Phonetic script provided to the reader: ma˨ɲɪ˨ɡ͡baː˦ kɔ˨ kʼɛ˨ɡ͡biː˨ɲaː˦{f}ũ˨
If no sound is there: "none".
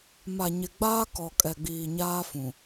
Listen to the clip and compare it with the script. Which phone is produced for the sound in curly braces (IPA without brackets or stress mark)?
f